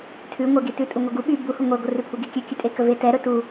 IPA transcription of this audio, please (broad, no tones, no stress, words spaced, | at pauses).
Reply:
tʰʉŋʷeɡi tʉtʼuŋʷɛɡu ɓy buhu ŋʷɛɡʷə rʉpʰuɡi kʲʉkʲʉtʼekə vetɛɾɵ tu